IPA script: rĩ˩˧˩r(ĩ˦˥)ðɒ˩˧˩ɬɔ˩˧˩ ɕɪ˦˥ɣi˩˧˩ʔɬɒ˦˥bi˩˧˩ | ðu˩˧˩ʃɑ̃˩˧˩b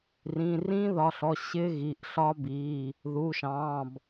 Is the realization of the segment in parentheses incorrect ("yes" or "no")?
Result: no